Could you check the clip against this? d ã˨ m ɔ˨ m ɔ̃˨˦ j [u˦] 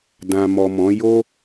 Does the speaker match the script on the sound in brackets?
no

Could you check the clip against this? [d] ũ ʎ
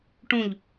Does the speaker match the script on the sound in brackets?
no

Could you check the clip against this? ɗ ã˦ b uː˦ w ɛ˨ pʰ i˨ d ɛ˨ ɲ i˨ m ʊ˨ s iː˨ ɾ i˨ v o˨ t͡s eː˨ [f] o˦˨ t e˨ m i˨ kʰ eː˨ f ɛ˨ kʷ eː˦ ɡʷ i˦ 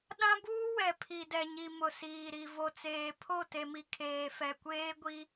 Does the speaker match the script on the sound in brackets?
no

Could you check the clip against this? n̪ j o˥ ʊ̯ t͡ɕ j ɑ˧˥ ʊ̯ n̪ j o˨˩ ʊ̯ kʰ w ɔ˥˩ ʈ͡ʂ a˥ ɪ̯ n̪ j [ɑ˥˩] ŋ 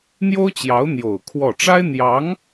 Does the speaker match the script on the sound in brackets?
no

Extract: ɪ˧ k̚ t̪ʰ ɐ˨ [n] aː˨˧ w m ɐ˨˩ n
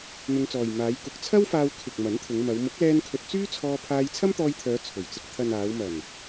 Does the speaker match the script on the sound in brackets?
yes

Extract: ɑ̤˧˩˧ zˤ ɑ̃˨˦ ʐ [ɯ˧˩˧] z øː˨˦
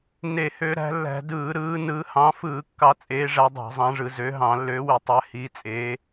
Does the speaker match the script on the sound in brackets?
yes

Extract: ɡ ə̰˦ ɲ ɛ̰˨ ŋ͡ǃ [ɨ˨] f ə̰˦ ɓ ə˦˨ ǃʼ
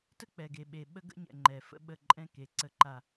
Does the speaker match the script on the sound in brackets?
no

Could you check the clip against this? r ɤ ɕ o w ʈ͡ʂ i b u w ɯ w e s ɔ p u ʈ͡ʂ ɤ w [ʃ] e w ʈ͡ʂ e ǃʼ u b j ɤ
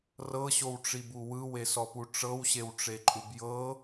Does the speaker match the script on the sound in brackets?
no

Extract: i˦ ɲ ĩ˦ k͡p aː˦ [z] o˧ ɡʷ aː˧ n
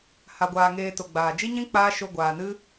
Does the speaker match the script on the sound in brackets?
no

